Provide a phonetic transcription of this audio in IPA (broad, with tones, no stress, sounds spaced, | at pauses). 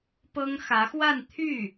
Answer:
p ɤ˥ ŋ x ä˧˥ x w a˥˧ n t̪ʰ y˥˩